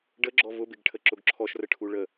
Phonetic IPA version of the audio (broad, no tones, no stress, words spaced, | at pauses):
ɖəɡ͡ǁɔ vʊbɪɡʈʰə ǁʊɡǁʰɔʃrə ʈʰuɭə